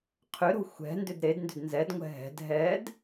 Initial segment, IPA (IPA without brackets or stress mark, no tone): qʰ